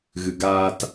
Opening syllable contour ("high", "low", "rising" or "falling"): low